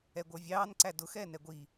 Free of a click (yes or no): no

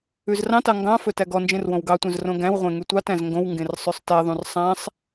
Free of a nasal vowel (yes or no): no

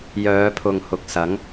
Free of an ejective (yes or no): yes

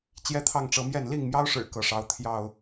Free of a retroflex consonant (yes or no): no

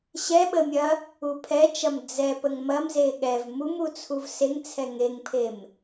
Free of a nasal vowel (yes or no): yes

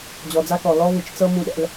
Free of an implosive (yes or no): no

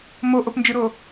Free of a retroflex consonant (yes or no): yes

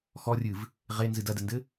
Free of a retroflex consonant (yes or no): yes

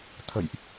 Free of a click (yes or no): yes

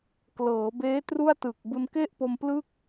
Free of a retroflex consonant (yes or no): yes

